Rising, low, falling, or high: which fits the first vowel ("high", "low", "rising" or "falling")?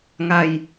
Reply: low